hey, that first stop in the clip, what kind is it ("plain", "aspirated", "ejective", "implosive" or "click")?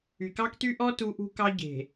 plain